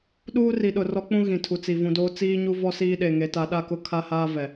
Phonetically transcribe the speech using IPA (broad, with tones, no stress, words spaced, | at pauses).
ɗuː˦ri˨ɗʊ˨ rɔ˦k͡pũ˦ ɣĩ˨tʰu˨t͡si˨ vũ˨doː˦ t͡siː˦ɲu˦ vɔ˦siː˦ɗe˨ ŋe˨˦ta˨˦ɗa˦kʊ˦ kʰa˦haː˦vɛ˨